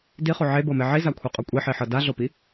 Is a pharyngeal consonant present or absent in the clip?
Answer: present